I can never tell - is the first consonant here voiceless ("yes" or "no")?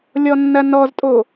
no